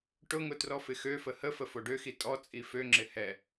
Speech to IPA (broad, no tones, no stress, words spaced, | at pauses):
ʈʊŋʊ trɔfɪxøfə həfə foɖøxi tʼɔ t͡sʼiføŋ͡ǁɪ hɛ